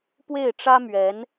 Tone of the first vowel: falling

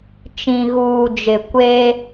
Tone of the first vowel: low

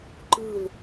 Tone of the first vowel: falling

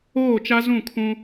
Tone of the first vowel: falling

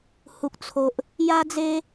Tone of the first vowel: low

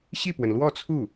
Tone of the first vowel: falling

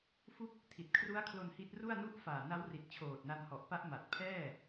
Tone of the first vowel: falling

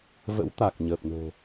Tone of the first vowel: rising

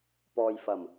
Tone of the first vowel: low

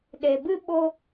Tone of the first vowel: low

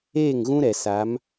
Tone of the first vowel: falling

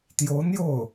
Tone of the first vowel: rising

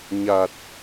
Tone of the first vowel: low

